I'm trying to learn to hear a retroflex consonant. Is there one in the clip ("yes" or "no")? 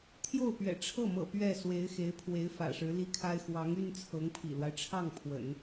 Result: yes